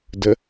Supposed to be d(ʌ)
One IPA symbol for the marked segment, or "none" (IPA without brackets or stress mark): ə